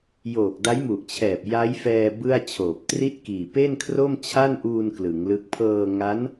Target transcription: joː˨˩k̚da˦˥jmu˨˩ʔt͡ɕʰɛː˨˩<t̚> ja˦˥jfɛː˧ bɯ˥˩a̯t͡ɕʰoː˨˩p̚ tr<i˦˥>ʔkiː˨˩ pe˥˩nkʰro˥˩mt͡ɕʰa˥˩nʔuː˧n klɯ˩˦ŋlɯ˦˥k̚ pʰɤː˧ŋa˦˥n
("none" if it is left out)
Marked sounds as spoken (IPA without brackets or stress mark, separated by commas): p̚, i˥˩